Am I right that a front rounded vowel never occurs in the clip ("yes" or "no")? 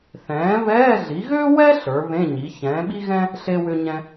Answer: no